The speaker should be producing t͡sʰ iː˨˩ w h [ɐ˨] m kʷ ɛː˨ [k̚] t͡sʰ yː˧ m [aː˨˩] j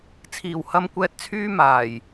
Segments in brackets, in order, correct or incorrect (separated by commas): correct, incorrect, correct